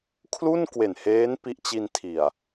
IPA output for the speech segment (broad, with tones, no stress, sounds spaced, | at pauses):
kʰ l u˥˩ n k w e˨˩ n h eː˦˥ n p i˦˥ ʔ t͡ɕ i˧ n tʰ i˨˩ a̯